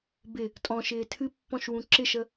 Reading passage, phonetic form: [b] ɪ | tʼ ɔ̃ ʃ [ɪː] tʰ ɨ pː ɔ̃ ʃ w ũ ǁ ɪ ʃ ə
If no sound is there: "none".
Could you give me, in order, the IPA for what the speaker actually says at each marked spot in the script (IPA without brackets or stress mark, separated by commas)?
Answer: b, ɪː